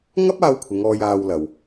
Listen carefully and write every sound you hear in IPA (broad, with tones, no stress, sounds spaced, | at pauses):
ŋ ɐ˥ p̚ aː˧ w kʷʰ ɪ˨˧ ŋ ɔː˧ j aː˧ w l ɐ˨ w